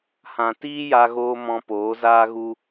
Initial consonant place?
glottal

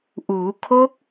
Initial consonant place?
glottal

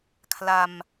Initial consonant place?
velar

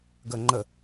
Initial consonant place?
velar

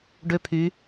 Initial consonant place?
retroflex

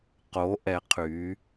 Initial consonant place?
uvular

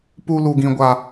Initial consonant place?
labial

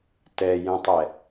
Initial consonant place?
alveolar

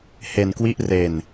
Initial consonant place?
glottal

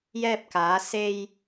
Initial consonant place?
palatal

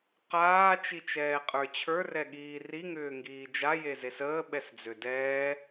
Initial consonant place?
uvular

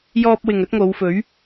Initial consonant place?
palatal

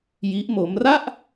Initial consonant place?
palatal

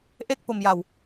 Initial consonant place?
glottal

